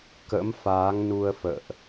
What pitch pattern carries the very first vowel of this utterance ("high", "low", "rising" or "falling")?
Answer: rising